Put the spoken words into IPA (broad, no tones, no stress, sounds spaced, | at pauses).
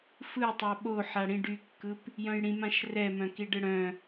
f ɯ tˤ a ɓ o ħ a ɽ ĩ ɖ y kː ɯ p | j œ̃ j ɽ ĩ m ã ʃ r ɛ m œ̃ k i ɖ ɯ ɽ œ̃